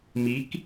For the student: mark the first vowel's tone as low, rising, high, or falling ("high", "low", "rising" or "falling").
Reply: rising